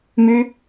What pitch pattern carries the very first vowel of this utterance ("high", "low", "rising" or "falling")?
high